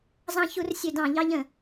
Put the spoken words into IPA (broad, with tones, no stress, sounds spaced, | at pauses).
z ɑ̃˧ ç u˧˩˧ r sʲ ø˧˩˧ d ɑ̃˧˩˧ ʎ ɑ˧ ʎ ə̃˧˩˧